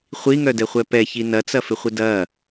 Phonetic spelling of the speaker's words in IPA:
χʷ i ŋ œ d ɛ χʷ ɛ p ɛ ç i n ɐ t͡s ɐ f ɪ χʷ ɪ d ɐ

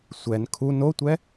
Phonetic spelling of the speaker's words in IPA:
sʷ ɛ n kʰ u n o tʷ ɛ

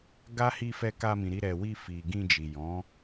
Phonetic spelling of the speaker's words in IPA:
ɡ a˦ h i˧ f ɛ˧ k a˧ m ĩ˨ ɾ i˧ ɾ ɛ˨ w i˧ f i˨ ɡ ĩ˧ d͡ʒ i˨ j ɔ̃˨˦

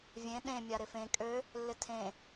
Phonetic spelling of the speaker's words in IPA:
vʲ ẽ ɗ ẽ mʲ a ɾ ɪ f ẽ kʼ ø | lː ɪ tʰ ẽ

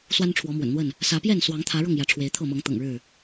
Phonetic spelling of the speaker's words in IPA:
s w a˦ n ʈ͡ʂʰ w ɔ˨˦ m w ə̰˨˩ n n̪ w ə˥˨ n | s ä˨˦ p j ɛ˥˨ n s w ɑ˨˦ ŋ t̪ʰ ä˨˦ ɻ ɤ˥˨ ŋ j ä˨˦ ʈ͡ʂʰ w e˨˦ ɪ̯ t̪ʰ ɤ˥˨ m ɤ˨˦ ŋ t̪ ɤ̰˨˩ ŋ ɻ ɻ̩˥˨

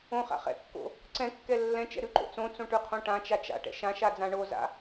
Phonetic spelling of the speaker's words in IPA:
õ χ a̰ χ ɛ̰ kː o̰ | ǀ ɛ̃ kː ɛ lː ɛ̃ t͡ʃ ɛ̰ ɾ ʉ ǃ o̰ t͡s õ t͡s õ ʈ ʉ qʰ õ ʈ ã t͡ʃ a t͡ʃ a̰ ʈ ɛ̰ ʃ ã ʃ a d͡z ã ɳ o z a̰

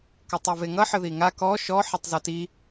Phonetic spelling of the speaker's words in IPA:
k ʌ tˤ o v e ŋ ʌ ħ ə ð i ŋ a k ɔ ʃ ɔ ħ e tˤ z ɔ t i

